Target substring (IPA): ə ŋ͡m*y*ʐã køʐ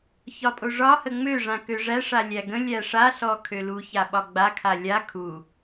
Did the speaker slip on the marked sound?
yes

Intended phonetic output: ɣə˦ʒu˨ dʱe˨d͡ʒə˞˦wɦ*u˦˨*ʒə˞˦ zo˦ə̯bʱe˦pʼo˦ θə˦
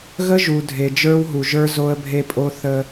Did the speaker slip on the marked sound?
yes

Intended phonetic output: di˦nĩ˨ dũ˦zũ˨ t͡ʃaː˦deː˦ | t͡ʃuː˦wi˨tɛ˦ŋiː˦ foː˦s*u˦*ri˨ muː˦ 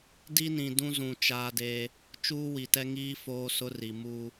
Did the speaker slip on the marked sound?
yes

